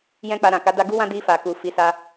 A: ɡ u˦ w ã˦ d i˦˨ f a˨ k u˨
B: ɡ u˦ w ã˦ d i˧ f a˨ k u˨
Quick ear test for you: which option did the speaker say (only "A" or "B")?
B